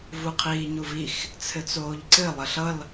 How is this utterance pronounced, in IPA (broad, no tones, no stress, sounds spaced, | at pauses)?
v u qʰ iː ɲ u v i x | t͡sʰ ɘ t͡s oː ʎ ǀ ɘ lˠ ə ɬ ʌ l